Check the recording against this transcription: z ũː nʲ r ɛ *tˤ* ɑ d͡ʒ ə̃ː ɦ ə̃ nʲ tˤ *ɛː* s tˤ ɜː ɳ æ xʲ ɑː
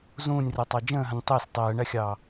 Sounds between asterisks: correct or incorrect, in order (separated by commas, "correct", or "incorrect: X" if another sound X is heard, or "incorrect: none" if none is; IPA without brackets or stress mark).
correct, incorrect: əː